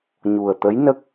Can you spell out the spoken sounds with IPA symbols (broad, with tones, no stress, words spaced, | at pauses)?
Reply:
ɲu˨˩ə̯t̪ə˧˥jnə˦˥k̚